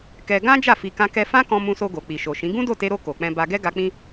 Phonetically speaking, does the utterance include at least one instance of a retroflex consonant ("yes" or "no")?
no